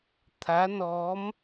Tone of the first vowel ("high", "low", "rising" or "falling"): rising